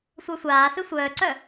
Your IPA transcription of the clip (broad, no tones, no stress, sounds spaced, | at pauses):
sʷ ə˞ sʷ aː s ɨ sʷ œː ǀ œ